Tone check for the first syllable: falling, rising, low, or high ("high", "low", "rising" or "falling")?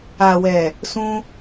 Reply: low